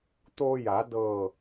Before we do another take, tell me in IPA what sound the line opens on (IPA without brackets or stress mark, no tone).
t̪